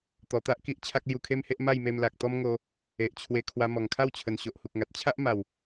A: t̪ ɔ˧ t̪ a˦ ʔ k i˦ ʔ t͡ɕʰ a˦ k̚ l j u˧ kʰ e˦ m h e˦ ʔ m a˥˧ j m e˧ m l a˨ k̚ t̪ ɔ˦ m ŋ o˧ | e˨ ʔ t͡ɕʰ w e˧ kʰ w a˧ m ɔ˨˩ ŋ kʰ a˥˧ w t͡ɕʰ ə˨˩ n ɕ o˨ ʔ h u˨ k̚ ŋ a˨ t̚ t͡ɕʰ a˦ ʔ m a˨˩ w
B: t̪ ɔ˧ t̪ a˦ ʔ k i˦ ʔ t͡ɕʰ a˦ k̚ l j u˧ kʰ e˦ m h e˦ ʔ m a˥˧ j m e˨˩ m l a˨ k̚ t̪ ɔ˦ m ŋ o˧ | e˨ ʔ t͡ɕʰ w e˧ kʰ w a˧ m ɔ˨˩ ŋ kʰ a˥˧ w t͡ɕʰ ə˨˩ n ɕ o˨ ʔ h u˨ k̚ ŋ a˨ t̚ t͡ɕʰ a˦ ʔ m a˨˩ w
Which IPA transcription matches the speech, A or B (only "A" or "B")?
A